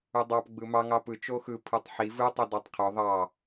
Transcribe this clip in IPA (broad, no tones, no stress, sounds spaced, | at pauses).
u dˤ ɑ p ɡ͡b ɯ m ɑ ŋ ɑ p ɯ t͡ʃ o x ɯ pʰ ɯ tˤ ħ i v ɯ tˤ u d ɑ tˤ qʰ ø ðˤ ɑ